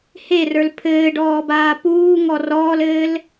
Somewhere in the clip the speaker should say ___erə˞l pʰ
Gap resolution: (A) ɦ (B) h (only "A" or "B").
B